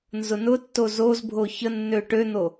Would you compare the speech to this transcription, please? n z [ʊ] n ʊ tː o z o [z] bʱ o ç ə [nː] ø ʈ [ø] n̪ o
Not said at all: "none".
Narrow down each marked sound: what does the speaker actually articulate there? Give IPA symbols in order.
ʊ, z, nː, ø

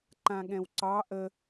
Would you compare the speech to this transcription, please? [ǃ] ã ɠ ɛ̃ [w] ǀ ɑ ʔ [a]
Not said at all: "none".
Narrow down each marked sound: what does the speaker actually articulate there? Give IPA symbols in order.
ǃ, w, ə

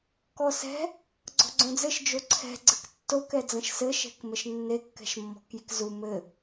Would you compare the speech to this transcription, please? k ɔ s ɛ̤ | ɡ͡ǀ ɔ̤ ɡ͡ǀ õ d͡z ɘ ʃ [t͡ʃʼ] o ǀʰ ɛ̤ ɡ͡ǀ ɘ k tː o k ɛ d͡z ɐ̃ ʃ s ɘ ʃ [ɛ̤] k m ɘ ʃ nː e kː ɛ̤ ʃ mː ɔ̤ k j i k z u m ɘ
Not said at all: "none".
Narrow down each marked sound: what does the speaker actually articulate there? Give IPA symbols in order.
d͡ʒ, ɛ̤

